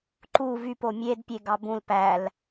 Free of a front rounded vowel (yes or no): no